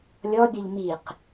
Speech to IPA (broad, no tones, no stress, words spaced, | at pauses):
lʲɔbʲɔʎ miq